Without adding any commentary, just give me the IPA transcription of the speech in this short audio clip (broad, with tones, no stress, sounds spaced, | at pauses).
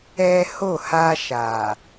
ɛ˦ h o˦˨ h a˧ ʃ a˨